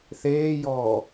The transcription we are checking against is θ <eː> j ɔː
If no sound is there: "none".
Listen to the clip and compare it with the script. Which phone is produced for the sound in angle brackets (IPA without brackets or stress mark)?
eː